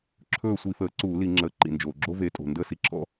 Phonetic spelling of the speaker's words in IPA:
ǁʰɵː˦˨sʷi˧˩˧fəː˩˥ ǀuː˧˩˧li˧˩˧ŋ͡ǁəː˩˧˩ ǃḭ˩nd͡ʒoː˩ɡ͡ǁo˦˥ ve˩˥tʼo̤˩ ndəː˦˥si˩˧˩ǁʰɔ̰˦˥

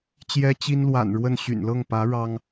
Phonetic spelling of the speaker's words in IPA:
t͡ɕjɛ˥t͡ɕi˥nlwa̰˨˩nɻwə˥˩n ɕy̰˨˩nlɤ˥˩ŋpä˧˥ ɻɑ˥ŋ

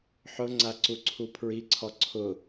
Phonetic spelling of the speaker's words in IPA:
ħʊŋ͡ǀaǀuǀʰu pʰɹiǀʰɔ ǀʰʊ

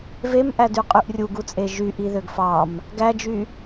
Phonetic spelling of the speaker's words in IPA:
vemʔædy qʼyʔrʲuɡut͡sʼe ʒyʔiðøɡ fɑm | ɡæd͡ʒy

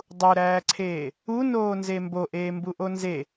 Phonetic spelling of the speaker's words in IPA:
dˤuɾæːǀʰeː | unoːnze mboʔeːmbuʔo nze

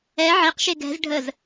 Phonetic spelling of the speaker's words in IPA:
ɛ ʕeqʃe ɡɛ̤z ɖʱəz

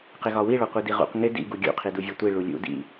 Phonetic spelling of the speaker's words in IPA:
qɪɣɒwiɭɒ qʷidiʁṵq ŋɪ dḭ ɡuɡʲṵqʰi duvʲɒtʷi ɭulʲṵ dḭ

